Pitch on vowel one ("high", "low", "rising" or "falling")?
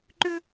high